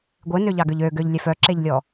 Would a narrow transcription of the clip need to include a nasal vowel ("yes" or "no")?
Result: no